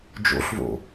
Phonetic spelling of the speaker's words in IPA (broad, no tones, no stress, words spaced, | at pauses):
d͡ʒo̰ɬvo̰